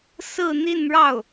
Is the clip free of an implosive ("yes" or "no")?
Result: yes